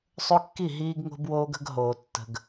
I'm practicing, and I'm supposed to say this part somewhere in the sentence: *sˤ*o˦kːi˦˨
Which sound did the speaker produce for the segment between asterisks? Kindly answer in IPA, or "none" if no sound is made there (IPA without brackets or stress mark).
sˤ